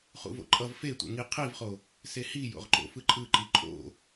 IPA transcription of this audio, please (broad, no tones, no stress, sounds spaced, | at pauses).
χ ṵ v o̰ ǃʼ ʌ v f e tʷ ɛ̰ ŋ i qʰ i v χ o | s e h i j o̰ ʁ ǃ o̰ f ɯ ǃʼ ɯ ǃ i ǃʼ o̰